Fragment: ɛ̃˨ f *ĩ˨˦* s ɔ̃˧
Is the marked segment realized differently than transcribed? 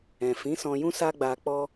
no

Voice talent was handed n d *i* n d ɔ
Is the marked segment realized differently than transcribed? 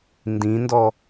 yes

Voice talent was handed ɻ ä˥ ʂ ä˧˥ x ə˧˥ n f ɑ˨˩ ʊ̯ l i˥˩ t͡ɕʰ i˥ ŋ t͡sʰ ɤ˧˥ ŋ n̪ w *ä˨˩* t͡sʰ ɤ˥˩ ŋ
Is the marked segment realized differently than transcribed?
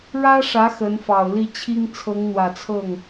no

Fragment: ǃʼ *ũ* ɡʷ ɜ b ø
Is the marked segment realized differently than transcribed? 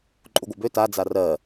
yes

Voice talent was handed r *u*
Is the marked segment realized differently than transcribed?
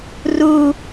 no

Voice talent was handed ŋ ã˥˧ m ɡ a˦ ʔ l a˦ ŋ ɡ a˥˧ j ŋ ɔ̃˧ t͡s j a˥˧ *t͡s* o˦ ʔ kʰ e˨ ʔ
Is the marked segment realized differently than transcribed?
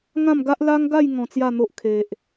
yes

